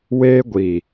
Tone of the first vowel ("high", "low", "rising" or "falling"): high